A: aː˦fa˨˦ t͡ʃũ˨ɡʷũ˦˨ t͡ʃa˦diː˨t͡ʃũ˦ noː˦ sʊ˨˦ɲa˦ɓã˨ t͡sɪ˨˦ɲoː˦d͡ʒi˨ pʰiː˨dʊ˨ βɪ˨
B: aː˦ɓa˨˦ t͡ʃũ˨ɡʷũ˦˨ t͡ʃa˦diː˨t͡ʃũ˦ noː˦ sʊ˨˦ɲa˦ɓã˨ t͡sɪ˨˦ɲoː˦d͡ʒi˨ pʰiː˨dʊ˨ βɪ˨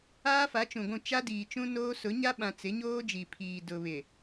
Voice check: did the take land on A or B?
A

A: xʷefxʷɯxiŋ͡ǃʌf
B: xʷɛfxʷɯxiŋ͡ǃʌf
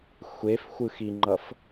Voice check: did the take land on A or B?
A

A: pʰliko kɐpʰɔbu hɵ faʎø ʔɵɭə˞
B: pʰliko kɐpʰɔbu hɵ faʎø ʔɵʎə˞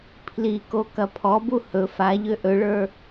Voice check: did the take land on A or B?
A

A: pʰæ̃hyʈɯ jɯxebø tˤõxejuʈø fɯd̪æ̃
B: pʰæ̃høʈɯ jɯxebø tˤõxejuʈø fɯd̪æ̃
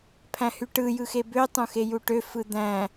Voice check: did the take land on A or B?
A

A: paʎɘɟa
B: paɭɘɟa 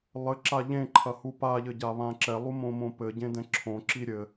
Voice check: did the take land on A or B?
A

